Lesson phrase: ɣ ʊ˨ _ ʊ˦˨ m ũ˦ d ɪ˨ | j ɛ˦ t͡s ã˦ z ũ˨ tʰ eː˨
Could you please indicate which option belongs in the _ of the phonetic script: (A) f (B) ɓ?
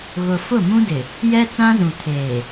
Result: A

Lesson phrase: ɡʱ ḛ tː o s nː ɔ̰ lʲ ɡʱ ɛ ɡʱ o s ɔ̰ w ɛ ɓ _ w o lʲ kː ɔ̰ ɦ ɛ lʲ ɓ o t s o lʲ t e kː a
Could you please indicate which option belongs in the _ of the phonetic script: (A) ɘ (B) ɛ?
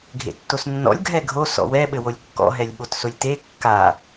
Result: A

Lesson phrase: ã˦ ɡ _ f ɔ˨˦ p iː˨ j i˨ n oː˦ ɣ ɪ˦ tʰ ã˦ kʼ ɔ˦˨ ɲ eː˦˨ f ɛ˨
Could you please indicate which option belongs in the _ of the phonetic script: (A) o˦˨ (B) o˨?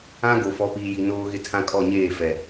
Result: B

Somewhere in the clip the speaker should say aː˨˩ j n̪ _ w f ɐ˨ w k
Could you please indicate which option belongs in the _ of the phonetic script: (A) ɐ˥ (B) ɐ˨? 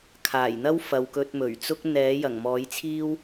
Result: A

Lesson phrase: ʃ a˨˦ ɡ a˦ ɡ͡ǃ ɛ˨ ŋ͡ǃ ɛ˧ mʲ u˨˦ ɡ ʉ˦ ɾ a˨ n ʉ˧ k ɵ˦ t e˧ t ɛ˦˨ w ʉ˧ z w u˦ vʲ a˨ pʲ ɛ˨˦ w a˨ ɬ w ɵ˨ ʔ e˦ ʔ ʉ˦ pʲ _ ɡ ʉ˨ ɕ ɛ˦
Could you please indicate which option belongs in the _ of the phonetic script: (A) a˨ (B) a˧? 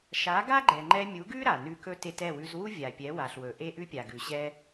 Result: A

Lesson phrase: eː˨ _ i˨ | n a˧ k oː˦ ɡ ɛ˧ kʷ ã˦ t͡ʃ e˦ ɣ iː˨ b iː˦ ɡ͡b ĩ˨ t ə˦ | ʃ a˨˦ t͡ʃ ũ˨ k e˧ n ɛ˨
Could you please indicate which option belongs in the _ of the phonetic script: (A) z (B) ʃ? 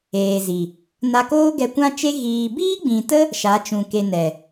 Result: A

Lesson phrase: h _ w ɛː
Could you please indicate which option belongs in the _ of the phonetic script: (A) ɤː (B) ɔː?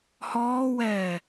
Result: B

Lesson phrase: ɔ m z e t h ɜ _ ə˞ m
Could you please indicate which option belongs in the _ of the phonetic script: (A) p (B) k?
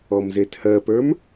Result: A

